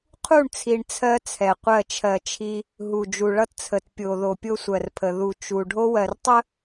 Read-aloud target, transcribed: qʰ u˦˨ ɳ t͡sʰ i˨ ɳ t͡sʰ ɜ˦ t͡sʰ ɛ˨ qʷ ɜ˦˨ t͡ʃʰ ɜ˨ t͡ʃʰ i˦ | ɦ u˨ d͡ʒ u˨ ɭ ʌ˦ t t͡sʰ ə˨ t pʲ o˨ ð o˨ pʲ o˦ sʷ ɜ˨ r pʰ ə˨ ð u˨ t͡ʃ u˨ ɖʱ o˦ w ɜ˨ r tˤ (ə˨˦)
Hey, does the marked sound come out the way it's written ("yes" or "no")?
no